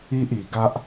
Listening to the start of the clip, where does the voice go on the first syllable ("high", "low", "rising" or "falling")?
high